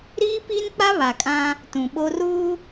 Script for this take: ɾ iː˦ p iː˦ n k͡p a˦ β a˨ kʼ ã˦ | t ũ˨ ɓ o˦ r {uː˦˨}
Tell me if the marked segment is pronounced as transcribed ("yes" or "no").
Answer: no